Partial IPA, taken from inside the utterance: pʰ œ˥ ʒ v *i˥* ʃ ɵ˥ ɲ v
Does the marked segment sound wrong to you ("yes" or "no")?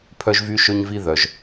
yes